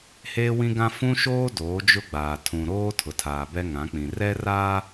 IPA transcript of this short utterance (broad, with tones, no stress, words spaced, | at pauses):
heː˦wĩ˦ɡã˦ fũ˦ʃoː˦ doː˨˦d͡ʒʊ˦ɡ͡baː˨ tʰũ˨ɾoː˦ tʰʊ˨tʰaː˨bɛ˦ ŋã˨˦k͡pĩ˨ rɛ˦raː˦